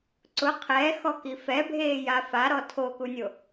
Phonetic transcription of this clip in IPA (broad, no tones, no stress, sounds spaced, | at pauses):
ǀ ʊ qʰ ɛ x ɔ k i f ɛ bʱ eː j a f a ɾ ɔ tʰ o k u nʲ o